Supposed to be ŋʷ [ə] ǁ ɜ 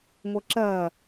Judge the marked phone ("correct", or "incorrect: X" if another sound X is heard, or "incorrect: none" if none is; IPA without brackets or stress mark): correct